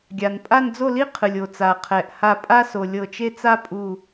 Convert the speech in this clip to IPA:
ɡʲ a˩ n pʼ a˥˧ n d͡z o˥˧ l i˥ qʰ ɯ˩ lʲ o˩ t͡s a˩ qʰ ɛ˩ ʔ h a˧˩ pʼ a˥ s o˩ lʲ ɤ˧˩ t͡ʃ e˥ t͡s a˥ pʼ u˧˩

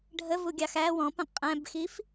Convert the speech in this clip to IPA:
ɖʱ ə v u ɡʲ ɑ x æ w ɔ̃ p ə̃ qʼ æ̃ b x i f

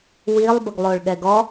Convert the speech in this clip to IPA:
w i lˠ b ə ɡ lˠ o ɭ ɠ ɛ ɡ ɔ

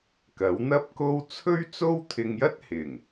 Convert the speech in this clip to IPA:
k ɐ˨˥ w n̪ ɐ˥ p̚ k o˥ w t͡sʰ ɵ˥ ɥ t͡s o˥ w t̪ʰ ɪ˧ ŋ j ɐ˥ t̚ h ɪ˨˩ ŋ

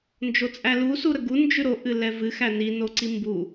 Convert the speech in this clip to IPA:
n d͡ʒ o t͡sʼ æ l u s u ɾ ə ɡ u n d͡ʒ ʉ ɾ o ʔ ɨ l ɛ v ɨ x æ n i n o ǀ i m b u

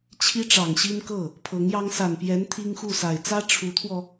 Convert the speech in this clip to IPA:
t͡ɕʰ i˥ ʈ͡ʂ ɑ˨˩ ŋ ɕ i˥ n k ɤ˥˩ | pʰ ɤ˧˥ ŋ j ɑ˥ ŋ s a˨˩ n p j ɛ˧˥ n t̪ʰ i˥ ŋ x u˥˩ s a˨˩ ɪ̯ t͡s ä˥ ʈ͡ʂʰ u˧˥ t̪ʰ w ɔ˧

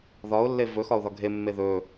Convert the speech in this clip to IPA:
ð ɒ ʊ̯ lː e v ɵ x ɒ ʊ̯ ð ɒ ɡʱ e mː e ð ɵ

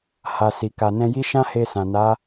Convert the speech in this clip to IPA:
h a˨ s i˨ k a˨ n ɛ̃˧ j i˦ ʃ ã˦ h e˧ s ã˨ n a˨˦

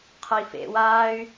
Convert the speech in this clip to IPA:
qʰ ɔ i̯ f ḛ w aː y̯

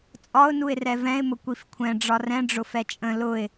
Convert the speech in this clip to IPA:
t͡sʼ ɒ ʊ̯ n u ɪ̯ r ɛ v ɛ̃ ɪ̯ m ʊ kʷ i f kʷʰ ɛ̃ ɖ͡ʐ ɒ r ɛ̃ ɖ͡ʐ ʊ f ɛ t͡ʃʼ ə̃ l ʊ ɪ̯

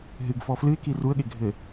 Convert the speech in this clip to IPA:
ɦ ɨ ɡ f ɔ f l ɨ ɪ̯ k i r u ə̯ ɠ e ɡʱ ɘ

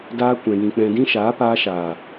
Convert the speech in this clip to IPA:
d aː˧ kʷ ɛ̃˨ j ĩ˨ k͡p ɛ̃˨ d ĩ˧ ʃ aː˨˦ p aː˧ ʃ aː˨

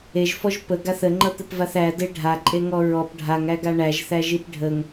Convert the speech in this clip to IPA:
e ʒ f ɔ ʒ p ə ɡ a θ ə ŋ͡ǃ ʌ t̪ ɘ p v a θ æ d e ɖʱ a ǃʼ e ŋ ɔ ɹ ɔ p ɖʱ a ŋ æ ɡ a ɳ æ ʒ θ æ ʒ i p ɖʱ ə ŋ

